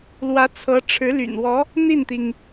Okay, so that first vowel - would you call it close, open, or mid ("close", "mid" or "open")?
open